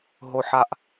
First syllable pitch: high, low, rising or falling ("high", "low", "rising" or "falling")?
low